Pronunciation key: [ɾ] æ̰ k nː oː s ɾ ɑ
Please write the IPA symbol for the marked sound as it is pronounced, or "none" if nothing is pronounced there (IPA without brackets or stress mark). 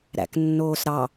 ɾ